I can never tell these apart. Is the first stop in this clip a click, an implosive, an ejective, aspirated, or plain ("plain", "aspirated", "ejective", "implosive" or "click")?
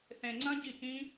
click